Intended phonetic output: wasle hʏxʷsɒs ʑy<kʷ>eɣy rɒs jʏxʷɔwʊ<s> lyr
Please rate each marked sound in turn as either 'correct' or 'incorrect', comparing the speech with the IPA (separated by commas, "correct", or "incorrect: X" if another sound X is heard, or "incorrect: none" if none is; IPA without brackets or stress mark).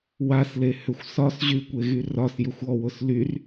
correct, correct